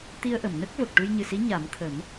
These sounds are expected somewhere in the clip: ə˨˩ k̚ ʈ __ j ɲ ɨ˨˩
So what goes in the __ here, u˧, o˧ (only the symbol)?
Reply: u˧